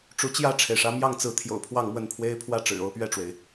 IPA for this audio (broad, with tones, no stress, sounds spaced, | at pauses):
ʈ͡ʂ u˧˥ t͡ɕ j ä˥˩ ʈ͡ʂʰ e˩ ɪ̯ ʂ ä˧˥ m j ɑ˥˩ ŋ t͡s ɹ̩˧˥ t̪ʰ j o̰˨˩ ʊ̯ pʰ w ɑ˥˧ ŋ m w ə˥˩ n pʰ w e˥ ɪ̯ pʰ w ä˥˩ ʈ͡ʂ ɻ̩˨˩ o˥˧ ʊ̯ p ɥ ɛ˥˩ ʈ͡ʂ w e˩ ɪ̯